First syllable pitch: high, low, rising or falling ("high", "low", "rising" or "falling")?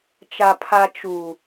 low